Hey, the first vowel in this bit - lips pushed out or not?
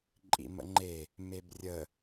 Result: no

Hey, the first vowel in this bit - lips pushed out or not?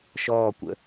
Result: yes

